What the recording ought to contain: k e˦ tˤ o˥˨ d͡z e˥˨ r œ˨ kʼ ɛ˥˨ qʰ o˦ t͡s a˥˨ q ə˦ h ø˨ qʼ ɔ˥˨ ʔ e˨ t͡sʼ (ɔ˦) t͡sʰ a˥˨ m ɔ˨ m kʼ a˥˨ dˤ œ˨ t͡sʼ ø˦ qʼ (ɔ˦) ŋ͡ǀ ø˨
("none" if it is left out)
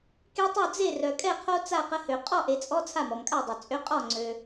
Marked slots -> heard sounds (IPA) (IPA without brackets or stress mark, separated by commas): ɔ˦, ɔ˥˨